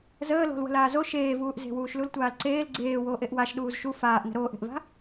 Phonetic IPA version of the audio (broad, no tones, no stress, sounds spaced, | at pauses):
z əː l o̤ l w ə̤ l aː z o ʃ eː v uː ʔ z e̤ w uː ʃ l u l tʷ aː l ǀ eː l ɡ͡ǀ eː w oː ʔ e ʔ w a ʃ ɗ uː z ʃ u f aː ʔ n ə̤ ɾ oː ʔ e̤ ʔ v a̤